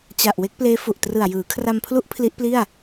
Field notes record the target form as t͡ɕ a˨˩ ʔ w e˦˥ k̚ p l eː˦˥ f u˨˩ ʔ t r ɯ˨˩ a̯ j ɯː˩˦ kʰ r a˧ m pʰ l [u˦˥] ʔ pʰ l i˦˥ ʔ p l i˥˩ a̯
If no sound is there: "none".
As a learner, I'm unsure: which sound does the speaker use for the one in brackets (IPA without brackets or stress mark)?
u˦˥